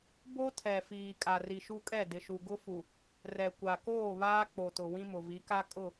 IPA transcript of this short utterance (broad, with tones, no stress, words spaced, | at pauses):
bo˦tʰɛ˨fiː˨ kʼa˨ri˨ʃu˦kʼɛ˦˨ dɪ˨ʃu˨ɡʊ˦fu˨ | rɛ˨ kʷa˨koː˦˨ βaː˦k͡po˨tʊ˨ wĩ˦mʊ˨vi˨˦ka˦ kʼʊ˦˨